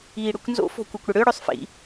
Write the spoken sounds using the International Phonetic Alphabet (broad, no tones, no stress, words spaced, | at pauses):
iːɽøkʷnzo̰ fo̤kʷekʷɽəɽø ɽøsˤfḭ